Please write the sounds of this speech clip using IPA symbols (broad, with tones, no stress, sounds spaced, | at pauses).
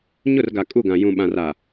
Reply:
ɲ ʊ˦˨ r ɡ a˨ kʼ u˦˨ ɡ ã˨ j ũ˨ ɓ ã˨ r aː˨